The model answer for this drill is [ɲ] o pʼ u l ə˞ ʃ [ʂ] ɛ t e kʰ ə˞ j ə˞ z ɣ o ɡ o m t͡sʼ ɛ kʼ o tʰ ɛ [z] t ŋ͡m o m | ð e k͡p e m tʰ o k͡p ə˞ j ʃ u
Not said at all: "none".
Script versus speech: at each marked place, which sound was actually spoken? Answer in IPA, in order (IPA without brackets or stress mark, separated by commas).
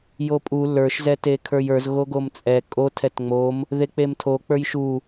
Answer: j, z, none